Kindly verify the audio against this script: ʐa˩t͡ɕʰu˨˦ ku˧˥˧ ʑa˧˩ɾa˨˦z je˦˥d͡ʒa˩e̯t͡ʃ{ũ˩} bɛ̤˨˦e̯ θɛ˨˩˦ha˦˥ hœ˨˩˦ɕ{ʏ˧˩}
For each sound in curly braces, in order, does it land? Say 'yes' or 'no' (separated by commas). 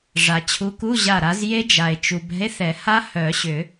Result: no, no